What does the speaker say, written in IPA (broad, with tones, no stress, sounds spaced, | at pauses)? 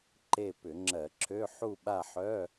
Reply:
ǃ e˦˨ p ʏ˧˩˧ ŋ͡ǁ ɜ˧˩˧ ǁʰ ø˧˥˧ ħ u˦˨ ɓ a˦˨ ħ œ˧˥˧